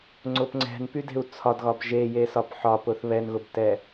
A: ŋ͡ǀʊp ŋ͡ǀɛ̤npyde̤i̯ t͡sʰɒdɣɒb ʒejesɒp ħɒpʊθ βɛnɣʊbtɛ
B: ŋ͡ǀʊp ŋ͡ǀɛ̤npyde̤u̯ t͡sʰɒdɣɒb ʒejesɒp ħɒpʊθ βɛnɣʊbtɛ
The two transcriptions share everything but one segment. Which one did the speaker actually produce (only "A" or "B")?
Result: B